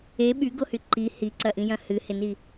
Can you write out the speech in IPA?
e ɓ y ɡ o h y ǃ i h i ǀ ɐ ʔ ĩ j ɐ̃ h ɨ h ɪ n i

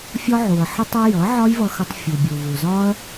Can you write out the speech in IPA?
fʲ ɒ˧ ʕ u˩ ɐ̯ ħ ə˧ tˤ ʌ˧ j ʌ˩˥ ʕ ɒ˥ j v ʌ˧ x ʌ˧ tˤ fʲ u˩ bʲ u˩ v u˩ z ɒ˥ ɐ̯

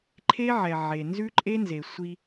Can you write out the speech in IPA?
ǃʰ e˦ ʕ ɛ˨ ʕ e˨ n z ʉ˦ ǃʼ e˦ n z e˨ sʷ i˦

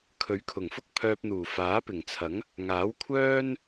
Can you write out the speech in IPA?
kʰ ɵ˨˥ ɥ kʰ ʊ˨˩ ŋ f ʊ˥ k̚ pʰ œː˧ p̚ n̪ uː˨˩ f aː˨˥ p ɪ˨˩ ŋ t͡sʰ ɐ˨˥ ŋ | ŋ aː˨˥ w kʷʰ œː˥ n

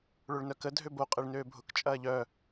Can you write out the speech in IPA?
ɭ ø ɭ n œ k ə dʱ ø b o qʼ ɛ ɭ n øː bʱ ʊ k t͡ʃʼ ɐː ʎ œ

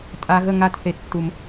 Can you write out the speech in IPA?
tʼ a˨ ɣ ə˦˨ ŋ a˦˨ t θ e˨ tː u˨ m

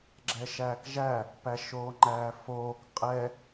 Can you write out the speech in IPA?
ɡ͡ǁ ɛ ʃ æː k ʒ æ | p æ ʃ oː ŋ͡ǃ æː f oː k qʼ ɛ

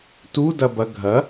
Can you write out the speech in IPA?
t u d ɐ b ɐ ɡʱ ɐ

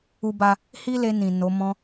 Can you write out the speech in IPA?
u˦ b a˦ | h i˦ l e˧ n ĩ˨ n o˨˦ m ɔ̃˦

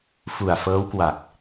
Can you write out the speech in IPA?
f u˨˩ a̯ f ɤː˦˥ w k w a˨˩ k̚

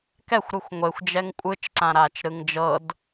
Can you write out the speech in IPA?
k ɛ xʷ ɾ ɯ xʷ ŋʷ e xʷ d͡ʒ ɛ ŋ kʷʼ ɯ t͡ʃ ǀ ã ɾ aː t͡ʃ ɾ ɯ ŋ d͡ʒ ɤ d

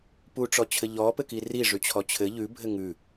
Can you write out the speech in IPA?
p u ʈ͡ʂ ɔ t͡ɕʰ ɘ ʎ ɔ p ɘ k i r i ʐ ʉ t͡ɕʰ ɔ t͡ɕʰ ɘ ʎ ʉ bʱ ɘ ŋ ʉ

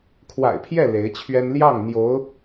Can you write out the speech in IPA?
kʰ w a̰˨˩ ɪ̯ pʰ j ɛ˥˩ l e˧˥ ɪ̯ t͡ɕʰ ɥ ɛ˥ n l j ɑ˥˩ ŋ n̪ j o˧˥ ʊ̯

